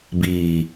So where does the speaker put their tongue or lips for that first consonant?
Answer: lips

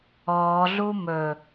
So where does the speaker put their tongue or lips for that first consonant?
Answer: tongue tip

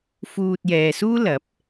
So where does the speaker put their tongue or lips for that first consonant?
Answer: lips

